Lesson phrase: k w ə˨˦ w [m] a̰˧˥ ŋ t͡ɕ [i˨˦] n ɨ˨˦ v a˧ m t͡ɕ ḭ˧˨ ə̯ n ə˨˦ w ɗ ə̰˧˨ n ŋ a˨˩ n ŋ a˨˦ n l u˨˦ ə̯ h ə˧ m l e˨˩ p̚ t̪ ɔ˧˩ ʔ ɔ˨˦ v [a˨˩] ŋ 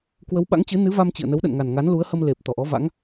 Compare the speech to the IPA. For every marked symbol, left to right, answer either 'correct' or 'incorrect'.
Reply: incorrect, incorrect, incorrect

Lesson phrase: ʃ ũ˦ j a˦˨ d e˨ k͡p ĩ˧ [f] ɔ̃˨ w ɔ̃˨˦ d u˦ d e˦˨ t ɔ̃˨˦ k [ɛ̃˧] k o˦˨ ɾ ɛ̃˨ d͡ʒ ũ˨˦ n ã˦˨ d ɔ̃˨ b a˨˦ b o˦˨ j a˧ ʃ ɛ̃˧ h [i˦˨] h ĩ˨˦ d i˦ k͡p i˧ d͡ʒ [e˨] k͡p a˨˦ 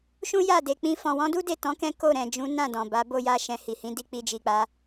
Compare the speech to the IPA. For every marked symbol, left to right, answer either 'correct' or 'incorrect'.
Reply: correct, incorrect, incorrect, incorrect

